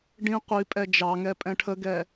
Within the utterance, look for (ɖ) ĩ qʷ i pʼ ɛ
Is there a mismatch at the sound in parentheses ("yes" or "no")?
no